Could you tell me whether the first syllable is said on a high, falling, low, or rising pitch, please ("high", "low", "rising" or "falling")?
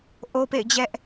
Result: high